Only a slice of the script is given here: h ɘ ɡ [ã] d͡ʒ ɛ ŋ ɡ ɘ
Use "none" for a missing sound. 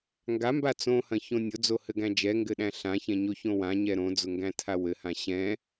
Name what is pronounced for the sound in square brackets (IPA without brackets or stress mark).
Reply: æ̃